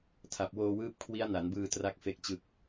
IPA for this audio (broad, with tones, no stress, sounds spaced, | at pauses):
tʰ a˨˩ p̚ w oː˧ w ɯː˦˥ p̚ kʰ w i˦˥ a̯ n a˩˦ n b ɯː˧ t r a˦˥ k̚ f e˦˥ k̚ t͡ɕ ɯ˦˥ k̚